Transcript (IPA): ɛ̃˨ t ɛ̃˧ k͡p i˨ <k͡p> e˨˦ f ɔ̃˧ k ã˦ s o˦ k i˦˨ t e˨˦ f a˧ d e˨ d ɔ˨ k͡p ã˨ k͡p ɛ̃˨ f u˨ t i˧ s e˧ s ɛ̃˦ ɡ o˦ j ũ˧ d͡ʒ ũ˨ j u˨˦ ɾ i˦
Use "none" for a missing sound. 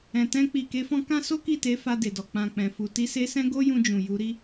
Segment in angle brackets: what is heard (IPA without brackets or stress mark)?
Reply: k